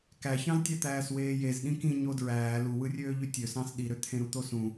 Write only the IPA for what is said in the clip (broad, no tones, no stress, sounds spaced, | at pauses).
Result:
k æ ç ɑ̃ z tʲ æ t̪ æː s w eː j e z ɗ ĩ k ĩ ɲ o d ɹ æː l u w ɯ rʲ øː ʎ y tʲ ø s ɑ̃ s ɗ i ɾ ø t̪ʰ ẽ ɾ u t̪ o s ũ